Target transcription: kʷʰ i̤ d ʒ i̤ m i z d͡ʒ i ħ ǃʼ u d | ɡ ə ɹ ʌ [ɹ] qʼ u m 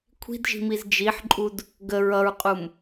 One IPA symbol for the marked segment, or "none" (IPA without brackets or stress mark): ɹ